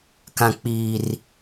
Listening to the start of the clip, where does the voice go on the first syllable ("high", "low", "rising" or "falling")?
low